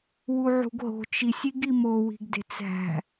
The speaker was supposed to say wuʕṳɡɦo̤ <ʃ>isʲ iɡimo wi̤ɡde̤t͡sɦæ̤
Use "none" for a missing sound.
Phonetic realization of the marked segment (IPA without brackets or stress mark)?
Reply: t͡ʃ